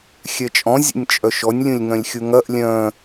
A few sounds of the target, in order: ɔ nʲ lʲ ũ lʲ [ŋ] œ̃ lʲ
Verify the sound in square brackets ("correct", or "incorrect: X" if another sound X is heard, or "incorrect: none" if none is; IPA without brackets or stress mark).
correct